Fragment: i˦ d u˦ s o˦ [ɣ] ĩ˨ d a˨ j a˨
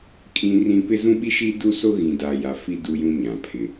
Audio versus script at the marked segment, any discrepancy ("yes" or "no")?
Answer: no